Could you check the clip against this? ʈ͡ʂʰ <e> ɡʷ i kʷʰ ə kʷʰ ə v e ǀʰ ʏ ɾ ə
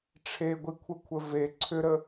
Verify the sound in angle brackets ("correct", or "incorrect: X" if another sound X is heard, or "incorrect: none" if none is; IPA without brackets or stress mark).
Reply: correct